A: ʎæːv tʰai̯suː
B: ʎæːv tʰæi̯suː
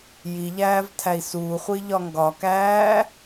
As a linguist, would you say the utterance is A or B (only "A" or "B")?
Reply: B